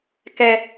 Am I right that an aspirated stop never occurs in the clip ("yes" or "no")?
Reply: yes